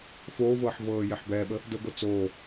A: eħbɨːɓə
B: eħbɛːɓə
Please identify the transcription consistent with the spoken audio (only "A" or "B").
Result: B